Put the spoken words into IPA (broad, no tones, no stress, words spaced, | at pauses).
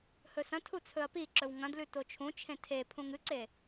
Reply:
hɵsɐ̃tʰu t͡sʰɵɐ̯piǁɵw ŋɐ̃dlʉ tot͡ʃʰũt͡ʃʰẽ tʰe pʰũŋɨǀe